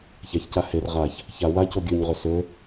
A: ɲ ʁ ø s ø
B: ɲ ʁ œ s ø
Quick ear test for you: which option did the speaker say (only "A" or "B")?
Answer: A